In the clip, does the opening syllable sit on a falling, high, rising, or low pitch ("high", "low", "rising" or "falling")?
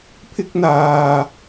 high